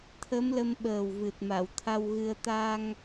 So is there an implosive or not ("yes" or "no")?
yes